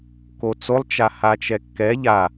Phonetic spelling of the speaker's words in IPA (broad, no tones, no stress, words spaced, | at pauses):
kot͡solˠ t͡ʃahat͡ʃɛkːɛ ʎa